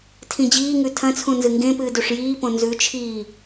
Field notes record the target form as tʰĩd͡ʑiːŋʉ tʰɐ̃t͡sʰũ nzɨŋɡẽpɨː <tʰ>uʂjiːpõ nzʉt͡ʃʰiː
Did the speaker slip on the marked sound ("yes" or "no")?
yes